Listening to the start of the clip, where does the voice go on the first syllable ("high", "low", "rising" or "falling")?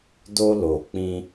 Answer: high